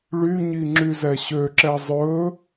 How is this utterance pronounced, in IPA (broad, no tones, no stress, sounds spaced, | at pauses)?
ɭ y ɲ i ŋ͡ǁ y z ɛ ɕ ø ǁ ɛ zˤ ɵ